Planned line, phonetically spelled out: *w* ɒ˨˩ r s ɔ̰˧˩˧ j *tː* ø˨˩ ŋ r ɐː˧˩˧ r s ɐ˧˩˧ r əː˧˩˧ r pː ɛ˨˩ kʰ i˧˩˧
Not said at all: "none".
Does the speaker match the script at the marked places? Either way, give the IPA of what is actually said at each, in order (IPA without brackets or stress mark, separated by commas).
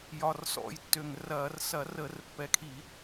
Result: j, tː